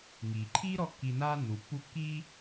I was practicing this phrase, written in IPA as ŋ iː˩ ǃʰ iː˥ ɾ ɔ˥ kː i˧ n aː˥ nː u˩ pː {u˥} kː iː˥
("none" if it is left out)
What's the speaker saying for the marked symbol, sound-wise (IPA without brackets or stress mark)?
u˥